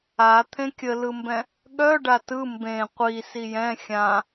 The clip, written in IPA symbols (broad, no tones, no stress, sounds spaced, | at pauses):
a t̪ʰ ẽ kʲ ə l ɯ m b ɛ̃ | ɠ œ ɖ a t ɯ m b ẽ qʷ i s i j ɛ̃ xʲ ã